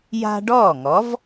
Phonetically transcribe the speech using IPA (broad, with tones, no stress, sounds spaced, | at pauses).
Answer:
j a̤˦ ɖ ɔː˥˩ ŋ ɔ˨˥ v